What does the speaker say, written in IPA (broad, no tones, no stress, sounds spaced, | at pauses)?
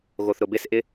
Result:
ɣ o θ ɾ ʊ b ɪ s ʔ ɪ